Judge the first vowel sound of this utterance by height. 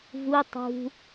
high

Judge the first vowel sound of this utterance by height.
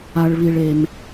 low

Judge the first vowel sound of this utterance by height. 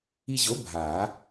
high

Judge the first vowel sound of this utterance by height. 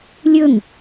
mid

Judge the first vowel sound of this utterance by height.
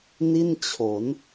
high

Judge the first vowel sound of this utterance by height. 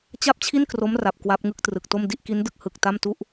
low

